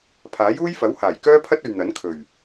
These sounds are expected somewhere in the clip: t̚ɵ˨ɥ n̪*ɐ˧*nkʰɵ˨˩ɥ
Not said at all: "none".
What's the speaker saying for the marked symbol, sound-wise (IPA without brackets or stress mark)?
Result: ɐ˨˥